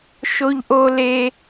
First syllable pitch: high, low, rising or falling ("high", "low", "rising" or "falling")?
high